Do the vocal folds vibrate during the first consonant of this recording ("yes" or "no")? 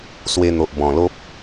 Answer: no